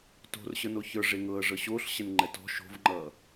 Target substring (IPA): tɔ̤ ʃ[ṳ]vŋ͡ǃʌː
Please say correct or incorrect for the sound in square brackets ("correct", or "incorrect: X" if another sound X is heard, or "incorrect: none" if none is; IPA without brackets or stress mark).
incorrect: o̤